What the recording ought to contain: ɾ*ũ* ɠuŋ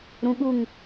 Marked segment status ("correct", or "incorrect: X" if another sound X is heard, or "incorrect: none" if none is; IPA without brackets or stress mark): correct